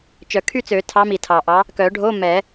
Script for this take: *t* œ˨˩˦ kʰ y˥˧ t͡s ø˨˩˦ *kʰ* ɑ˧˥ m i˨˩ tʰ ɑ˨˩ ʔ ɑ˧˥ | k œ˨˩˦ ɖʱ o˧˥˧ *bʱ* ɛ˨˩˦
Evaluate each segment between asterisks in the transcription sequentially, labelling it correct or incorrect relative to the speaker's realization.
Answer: incorrect: t͡ʃ, incorrect: tʰ, incorrect: m

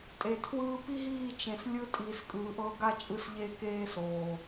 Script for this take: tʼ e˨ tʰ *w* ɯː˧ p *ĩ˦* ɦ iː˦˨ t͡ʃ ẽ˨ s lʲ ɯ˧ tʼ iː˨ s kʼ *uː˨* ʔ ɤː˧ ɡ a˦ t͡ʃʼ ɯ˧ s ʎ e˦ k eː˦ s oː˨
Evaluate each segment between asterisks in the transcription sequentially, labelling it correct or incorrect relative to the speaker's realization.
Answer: correct, incorrect: i˦, incorrect: ɯː˨

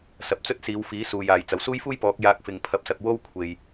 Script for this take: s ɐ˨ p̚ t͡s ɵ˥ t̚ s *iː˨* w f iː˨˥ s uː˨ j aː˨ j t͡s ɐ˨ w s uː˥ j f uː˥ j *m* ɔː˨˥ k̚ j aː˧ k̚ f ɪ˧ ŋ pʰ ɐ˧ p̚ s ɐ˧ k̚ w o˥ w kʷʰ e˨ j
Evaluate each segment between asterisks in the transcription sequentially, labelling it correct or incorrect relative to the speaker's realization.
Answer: incorrect: iː˨˧, incorrect: p

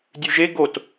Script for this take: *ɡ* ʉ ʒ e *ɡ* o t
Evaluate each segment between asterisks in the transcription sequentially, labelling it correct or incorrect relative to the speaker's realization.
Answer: incorrect: dʲ, correct

